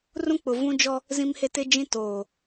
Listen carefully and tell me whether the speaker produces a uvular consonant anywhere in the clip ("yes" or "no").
no